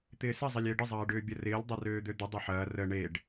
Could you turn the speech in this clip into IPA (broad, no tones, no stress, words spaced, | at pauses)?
t̪ɪːsɪ zˤɛlʲɪːɖə zˤɐːɖʏːbʲɐrɪːlʲ dˤɐrøːd̪ød̪ɪ dˤɐħɐː rə ɳeɖ